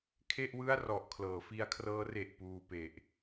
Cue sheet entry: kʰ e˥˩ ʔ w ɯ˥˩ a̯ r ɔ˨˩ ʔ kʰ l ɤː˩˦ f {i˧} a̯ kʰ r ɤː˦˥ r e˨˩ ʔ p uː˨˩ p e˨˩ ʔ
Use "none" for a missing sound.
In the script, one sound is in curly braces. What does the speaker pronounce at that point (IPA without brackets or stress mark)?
i˧